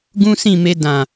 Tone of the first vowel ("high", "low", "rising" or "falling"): high